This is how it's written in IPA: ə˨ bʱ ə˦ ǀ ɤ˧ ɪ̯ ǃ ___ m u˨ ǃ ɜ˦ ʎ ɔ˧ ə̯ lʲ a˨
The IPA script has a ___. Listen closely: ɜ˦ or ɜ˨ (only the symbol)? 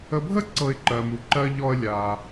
ɜ˨